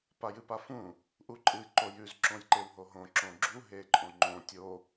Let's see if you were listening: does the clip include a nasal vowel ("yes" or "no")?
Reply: yes